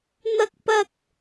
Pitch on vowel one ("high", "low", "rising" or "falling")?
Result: high